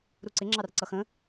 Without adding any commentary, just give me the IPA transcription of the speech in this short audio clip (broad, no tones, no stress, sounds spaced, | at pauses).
ɾ u ǀ ɪ ŋ͡ǁ ɑ r ǀ ʌ x ə̃